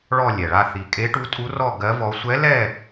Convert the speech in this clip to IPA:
ɭ ɔ˥˧ lʲ ɛ˨˩ ɭ a˥˧ θ i˨˩ kʼ e˧˥ ʈ u˧˥ tʼ u˧˥ r ɔ˥˧ ɡ ɜ˧˥ v ɔ˧˥ sʷ ɛ˧˥ l ɛ˥˧

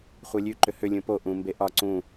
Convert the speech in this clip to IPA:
χʷ e lʲ ʉ ǃ ʏ h ʏ lʲ ũ p o ʔ ũ m b e ʔ ɒ ǀ ũ

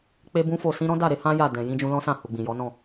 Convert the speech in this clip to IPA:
k͡p e˦ b ũ˦ f o˦˨ s ĩ˧ ɾ ɔ̃˦ d a˦˨ ɾ e˧ h ã˦ j a˦˨ d ɛ̃˨ j ĩ˧ d͡ʒ ũ˧ l ɔ̃˦ s ã˦˨ h u˨ ɡ͡b ĩ˨ j ɔ˨˦ n ɔ̃˦˨

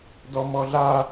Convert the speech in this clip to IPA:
d ɔ m ɔ ɮ a

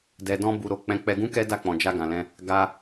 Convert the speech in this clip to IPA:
d ɛ˧ d ɔ̃˦ b u˧ ɾ o˧ k͡p ɛ̃˧ k͡p ɛ˧ ɡ ũ˦ k ɛ˦ d a˦˨ k͡p ɔ̃˨ d͡ʒ a˧ ɡ ã˨ l ɛ̃˧ | ɡ a˦

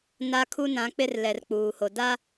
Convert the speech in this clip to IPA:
n a˦ kʰ u˦ n ã˨˦ k͡p ɪ˦ r l ɛ˨ r k͡p uː˨ h o˨ d a˦

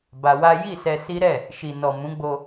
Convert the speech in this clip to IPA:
b a˧ w a˦ j i˦˨ s ɛ˧ s i˦ ɾ ɛ˦˨ | ʃ i˨ n ɔ˨ m ũ˨˦ ɡ͡b o˧

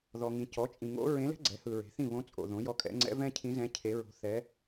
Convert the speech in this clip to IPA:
ð ɔ˨ ŋ ĩ˨ c ɔ˩˥ t͡ʃʼ ĩ˨ ŋ o̰˧˥ ɹ ẽ˧˥ l ɛ̤˥ ɡ͡ǀ ɛ˩˥ h ɯ˨ ɹ e̤˩˥ θ ĩ˥˨ β õ˧˥ t͡sʼ o̰˨ ð õ˩˥ j ɔ˧˥ kʼ ɛ̰˩˥ ŋ͡ǀ ɛ̰˧˥ v ɛ̃˥ cʰ ĩ˧˥ z ɛ̃˧˥ cʰ e˧˥ ɹ o̤˧˥ θ ɛ˧˥

